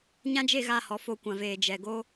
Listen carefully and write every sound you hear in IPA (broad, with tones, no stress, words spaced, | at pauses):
ɲã˦d͡ʒe˦˨ɣa˦˨hɔ˨ fo˦˨kʷã˨veː˨ d͡ʒɛ˨ ɡo˦